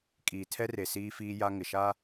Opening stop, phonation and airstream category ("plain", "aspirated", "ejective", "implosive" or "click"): ejective